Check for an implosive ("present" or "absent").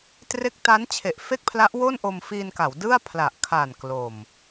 absent